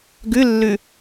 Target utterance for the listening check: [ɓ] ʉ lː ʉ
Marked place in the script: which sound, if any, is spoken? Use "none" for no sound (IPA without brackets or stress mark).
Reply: ɡ